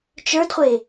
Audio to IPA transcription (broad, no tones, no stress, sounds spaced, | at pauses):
t͡ʃ ə˞ d χʷ e